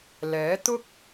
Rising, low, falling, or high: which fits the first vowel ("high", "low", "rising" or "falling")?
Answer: rising